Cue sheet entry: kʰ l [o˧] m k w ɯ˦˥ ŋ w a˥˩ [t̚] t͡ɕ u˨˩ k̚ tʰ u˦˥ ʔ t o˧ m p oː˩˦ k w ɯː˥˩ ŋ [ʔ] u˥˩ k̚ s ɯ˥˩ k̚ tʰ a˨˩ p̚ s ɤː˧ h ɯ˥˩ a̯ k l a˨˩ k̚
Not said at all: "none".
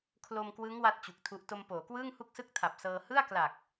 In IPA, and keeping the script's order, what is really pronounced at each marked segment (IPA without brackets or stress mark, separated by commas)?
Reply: o˧, t̚, h